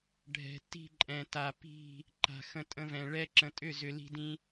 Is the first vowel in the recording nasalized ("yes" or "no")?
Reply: no